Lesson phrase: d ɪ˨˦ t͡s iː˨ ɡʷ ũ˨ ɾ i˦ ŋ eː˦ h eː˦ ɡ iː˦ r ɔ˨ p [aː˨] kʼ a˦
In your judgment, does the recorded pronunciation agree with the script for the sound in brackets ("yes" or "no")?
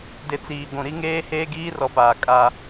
yes